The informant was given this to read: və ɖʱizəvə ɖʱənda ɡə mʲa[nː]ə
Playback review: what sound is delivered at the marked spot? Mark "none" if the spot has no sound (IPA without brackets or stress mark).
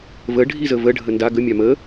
m